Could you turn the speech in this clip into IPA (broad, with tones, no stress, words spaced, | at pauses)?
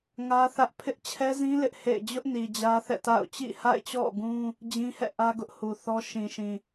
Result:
ŋä˦ θä˦ʔ pʰɪ˦ʔt͡ɕʰɛ˦zĩ˦ lɪ˦ʔhḛ˦˨ɪ̯ d͡ʑʊ˦ʔni˨ d͡ʑä˦θɛ̰˦˨ta̰˦˨ʊ̯ t͡ɕḭ˦˨ha̰˦˨ɪ̯t͡ɕɔ̰˦˨ɡũ˦ | d͡ʑĩ˦hɛ̰˦˨ʔä˦ ɡʊ˦ʔhu˨θɔ˦ ʃĩ˨ʃĩ˨